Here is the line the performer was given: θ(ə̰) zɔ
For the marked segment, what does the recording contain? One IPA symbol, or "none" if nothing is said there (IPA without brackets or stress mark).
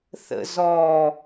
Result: ə̰